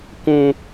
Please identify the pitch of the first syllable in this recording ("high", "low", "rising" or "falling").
high